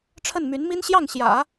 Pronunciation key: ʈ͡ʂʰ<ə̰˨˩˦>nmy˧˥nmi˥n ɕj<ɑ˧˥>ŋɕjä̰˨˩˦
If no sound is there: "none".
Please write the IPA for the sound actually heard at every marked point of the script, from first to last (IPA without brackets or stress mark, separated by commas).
ə˥˩, ɑ˥˩